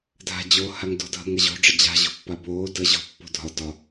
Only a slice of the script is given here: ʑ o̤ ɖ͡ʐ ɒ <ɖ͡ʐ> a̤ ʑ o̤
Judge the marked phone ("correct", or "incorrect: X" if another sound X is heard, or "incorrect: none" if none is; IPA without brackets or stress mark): incorrect: d͡ʑ